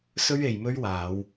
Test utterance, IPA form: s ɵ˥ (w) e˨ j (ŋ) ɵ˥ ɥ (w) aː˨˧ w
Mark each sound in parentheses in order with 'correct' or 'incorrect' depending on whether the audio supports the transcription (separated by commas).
incorrect, incorrect, correct